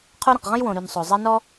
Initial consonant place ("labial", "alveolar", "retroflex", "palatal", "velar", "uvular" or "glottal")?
uvular